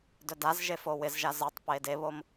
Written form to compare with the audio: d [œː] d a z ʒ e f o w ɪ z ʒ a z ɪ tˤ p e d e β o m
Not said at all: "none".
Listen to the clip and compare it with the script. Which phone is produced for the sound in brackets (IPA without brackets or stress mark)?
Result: œ